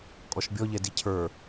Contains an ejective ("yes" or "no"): yes